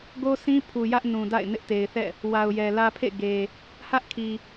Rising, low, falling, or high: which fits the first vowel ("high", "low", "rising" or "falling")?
high